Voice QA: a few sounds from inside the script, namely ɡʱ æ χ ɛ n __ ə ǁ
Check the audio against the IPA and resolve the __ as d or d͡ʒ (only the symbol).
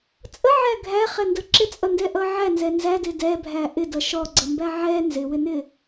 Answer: d